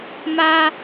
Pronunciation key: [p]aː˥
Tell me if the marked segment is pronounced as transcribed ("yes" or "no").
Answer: no